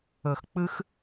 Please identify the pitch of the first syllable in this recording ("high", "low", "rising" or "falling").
low